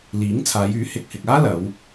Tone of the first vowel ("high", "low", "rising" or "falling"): rising